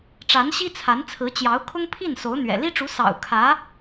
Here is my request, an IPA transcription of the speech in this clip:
ʈ͡ʂ a˧˥ n ɕ i˥ t͡sʰ a˧˥ n t͡sʰ ɹ̩˧˥ t͡ɕ j ɑ˧˥ ʊ̯ kʰ ʊ˥ ŋ pʰ i˥˩ n s o˧˥ ʊ̯ n̪ ɥ ɛ̰˨˩ l i˥ ʈ͡ʂ u˧˥ s ɑ̰˨˩ ʊ̯ kʰ ä˧˥

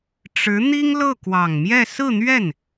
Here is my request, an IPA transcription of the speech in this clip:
ʈ͡ʂ ɻ̩˧˥ n̪ i˥ ŋ l ɤ˥˩ k w ɑ˨˩ ŋ m j ɛ˥˧ s ɹ̩˥˧ n̪ ɥ ɛ˥˩ n

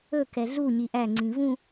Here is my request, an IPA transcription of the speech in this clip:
ɵ k ɛ ɮ u ɲ i ʔ æ ŋ͡ǀ ĩ v ũ

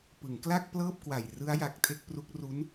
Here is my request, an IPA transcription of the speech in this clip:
p ɯ˩˦ ŋ k l a˥˩ k̚ p l ɤː˥˩ p̚ k w a˨˩ j r ɯ˦˥ a̯ j a˨˩ k̚ tʰ e˥˩ k̚ p r u˦˥ k̚ r u˦˥ n

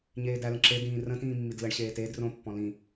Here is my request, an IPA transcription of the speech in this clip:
ɲ eː d æ l ə̃ ǁ e d ĩː r ə̃ t ĩː mː i d l ə ɳ ɕ eː t eː d r õ pː ɔ̃ l ĩ

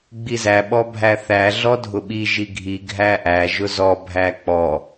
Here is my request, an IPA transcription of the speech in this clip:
ɡ͡b i z æ ɓ ɔ bʱ æ θ æ ɮ ɔ dʱ ʊ ɓ i ʒ i ɡʱ i ɡʱ æ ʔ æ ʒ ʊ z ɔ bʱ æ k͡p ɔ

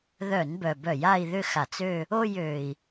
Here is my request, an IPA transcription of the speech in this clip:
ð œ˧˩˧ n b œ˨˩ b œ˧˩˧ j a˥˧ i̯ ð ʏ˥˧ x a˧˩˧ t͡s ø˥˧ | o˥˧ j ø˨˩ i̯

